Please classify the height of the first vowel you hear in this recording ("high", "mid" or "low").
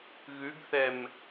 high